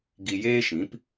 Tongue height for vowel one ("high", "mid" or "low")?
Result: high